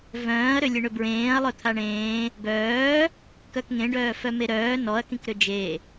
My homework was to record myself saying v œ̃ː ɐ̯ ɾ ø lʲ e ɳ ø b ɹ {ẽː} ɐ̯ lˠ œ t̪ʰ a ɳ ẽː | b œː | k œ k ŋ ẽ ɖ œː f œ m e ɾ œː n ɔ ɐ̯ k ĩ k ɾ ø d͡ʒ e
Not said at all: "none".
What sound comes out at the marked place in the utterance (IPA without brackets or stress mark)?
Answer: ẽː